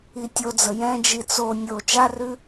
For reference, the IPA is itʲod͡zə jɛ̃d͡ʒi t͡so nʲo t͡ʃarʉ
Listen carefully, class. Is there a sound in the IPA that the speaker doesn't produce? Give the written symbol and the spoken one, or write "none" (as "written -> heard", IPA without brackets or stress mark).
none